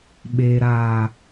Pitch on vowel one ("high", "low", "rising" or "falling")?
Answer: low